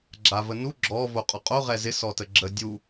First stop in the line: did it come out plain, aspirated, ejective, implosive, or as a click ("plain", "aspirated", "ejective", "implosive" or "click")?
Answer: click